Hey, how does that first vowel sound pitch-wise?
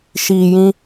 low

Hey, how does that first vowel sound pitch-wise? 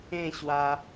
falling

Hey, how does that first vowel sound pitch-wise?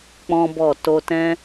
high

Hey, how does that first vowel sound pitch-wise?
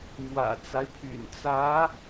low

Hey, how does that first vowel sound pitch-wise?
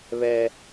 high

